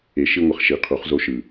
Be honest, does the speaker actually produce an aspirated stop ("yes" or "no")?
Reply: yes